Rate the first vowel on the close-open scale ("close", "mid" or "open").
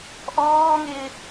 mid